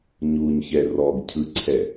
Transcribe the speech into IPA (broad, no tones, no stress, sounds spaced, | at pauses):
ɲ u ɲ ç ɛ r ɔ ɡ cʰ ɯ ǀʰ ɛ